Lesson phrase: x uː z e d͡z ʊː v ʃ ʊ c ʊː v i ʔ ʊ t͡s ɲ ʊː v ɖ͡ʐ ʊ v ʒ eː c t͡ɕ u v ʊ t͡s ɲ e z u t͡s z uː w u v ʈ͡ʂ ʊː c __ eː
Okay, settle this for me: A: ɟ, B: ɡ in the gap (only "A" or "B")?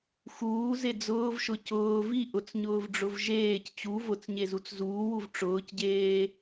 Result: A